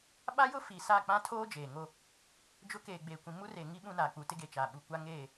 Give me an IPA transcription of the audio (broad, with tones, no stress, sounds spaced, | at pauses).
ɓ a˦ j ʊ˦ f i˨ s a˦˨ k͡p ã˦ tʰ oː˦ d͡ʒ eː˨ ŋ o˦ | d͡ʒ ʊ˦ k eː˨ ɡ͡b eː˨ kʷ ĩ˨ m u˦ r e˨ ŋ i˦ ɓ ũ˦ n aː˨ k͡p u˨ t ɪ˦ ɡ e˨ t͡ʃ a˨ ɓ u˨ kʷ a˦ ŋ eː˦˨